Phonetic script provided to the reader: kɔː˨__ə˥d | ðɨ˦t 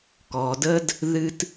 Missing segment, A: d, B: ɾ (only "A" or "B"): A